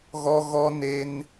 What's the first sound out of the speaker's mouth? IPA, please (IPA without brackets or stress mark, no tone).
ɣ